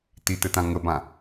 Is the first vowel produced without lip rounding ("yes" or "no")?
yes